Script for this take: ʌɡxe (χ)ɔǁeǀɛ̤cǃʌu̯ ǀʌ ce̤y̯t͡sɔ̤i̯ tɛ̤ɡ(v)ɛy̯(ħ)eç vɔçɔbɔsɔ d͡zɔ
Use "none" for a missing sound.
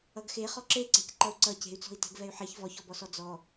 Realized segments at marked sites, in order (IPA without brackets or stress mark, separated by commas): χ, v, ħ